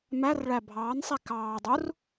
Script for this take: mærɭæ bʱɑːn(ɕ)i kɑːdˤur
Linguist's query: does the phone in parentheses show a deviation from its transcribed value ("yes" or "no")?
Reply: yes